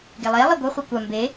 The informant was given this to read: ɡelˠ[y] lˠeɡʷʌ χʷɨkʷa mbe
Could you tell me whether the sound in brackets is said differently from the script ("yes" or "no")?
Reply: yes